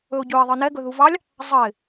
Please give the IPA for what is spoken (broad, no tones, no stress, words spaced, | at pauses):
ɵʊ̯ɟɵɪ̯ ðˤɨnɛɡɵ ðuvɑlʲ | zˤəɪ̯